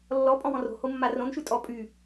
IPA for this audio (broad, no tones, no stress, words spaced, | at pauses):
lːɔ pʼɔ̃wɔ̃ro̤ homːarõn ʃʉtʼɔ pʼy